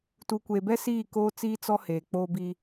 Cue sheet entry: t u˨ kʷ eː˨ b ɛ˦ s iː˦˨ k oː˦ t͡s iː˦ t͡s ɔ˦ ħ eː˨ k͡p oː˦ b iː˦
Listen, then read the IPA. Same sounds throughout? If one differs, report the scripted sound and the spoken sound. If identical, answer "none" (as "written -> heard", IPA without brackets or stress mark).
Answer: ħ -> h